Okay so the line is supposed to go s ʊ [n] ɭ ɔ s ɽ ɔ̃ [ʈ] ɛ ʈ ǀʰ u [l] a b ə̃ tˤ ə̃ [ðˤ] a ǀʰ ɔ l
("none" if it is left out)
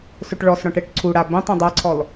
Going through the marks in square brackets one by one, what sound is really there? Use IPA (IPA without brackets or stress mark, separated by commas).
ʈ, ʈ, ɽ, dˤ